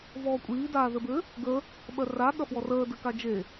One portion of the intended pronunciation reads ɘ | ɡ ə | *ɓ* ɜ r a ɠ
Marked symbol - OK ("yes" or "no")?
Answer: yes